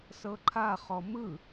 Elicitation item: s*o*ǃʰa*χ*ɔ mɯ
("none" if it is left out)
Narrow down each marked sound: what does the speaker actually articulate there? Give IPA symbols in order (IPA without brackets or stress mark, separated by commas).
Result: ɤ, χ